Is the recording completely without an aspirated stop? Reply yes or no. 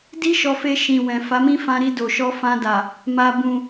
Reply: yes